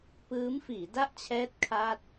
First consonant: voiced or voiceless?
voiceless